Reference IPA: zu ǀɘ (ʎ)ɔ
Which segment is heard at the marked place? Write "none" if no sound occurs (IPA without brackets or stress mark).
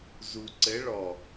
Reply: ɭ